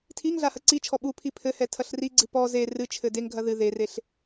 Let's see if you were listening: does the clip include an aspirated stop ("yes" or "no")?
yes